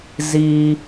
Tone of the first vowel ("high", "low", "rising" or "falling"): low